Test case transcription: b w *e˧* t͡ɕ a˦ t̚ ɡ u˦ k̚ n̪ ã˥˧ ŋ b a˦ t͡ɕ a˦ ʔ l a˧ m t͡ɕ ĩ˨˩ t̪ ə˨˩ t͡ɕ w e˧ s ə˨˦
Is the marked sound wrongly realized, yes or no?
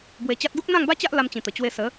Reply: no